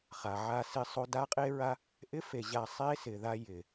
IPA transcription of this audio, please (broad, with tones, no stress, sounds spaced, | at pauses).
χ a˨ ʕ a˧ s ɪ˧ sˤ o˧ d a˦ qʼ e˦ ɹ a˦ | ʔ ɪ˦ f e˨ ʑ a˧ sˤ e˦ s ɪ˨ ð a˧ j ɪ˨